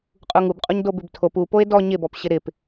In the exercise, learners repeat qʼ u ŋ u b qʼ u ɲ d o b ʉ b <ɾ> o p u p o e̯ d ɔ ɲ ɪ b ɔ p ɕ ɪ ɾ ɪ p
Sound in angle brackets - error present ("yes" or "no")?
yes